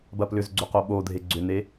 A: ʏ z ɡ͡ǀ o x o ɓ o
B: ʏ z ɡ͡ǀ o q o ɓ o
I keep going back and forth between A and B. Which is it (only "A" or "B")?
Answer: B